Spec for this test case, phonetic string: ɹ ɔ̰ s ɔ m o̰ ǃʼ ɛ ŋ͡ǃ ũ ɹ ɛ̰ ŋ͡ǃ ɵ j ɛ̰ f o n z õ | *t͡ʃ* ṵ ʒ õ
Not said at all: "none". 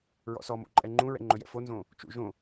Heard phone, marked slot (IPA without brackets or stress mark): t͡ʃ